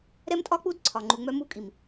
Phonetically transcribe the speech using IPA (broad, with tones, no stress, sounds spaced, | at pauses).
ɾ ɛ˦ m tʼ ɒ˦ k͡p u˦ d ǀʰ ɒ˨ ŋ͡ǃ u˨ ŋ͡m œ˦ m u˦ kʼ i˨ m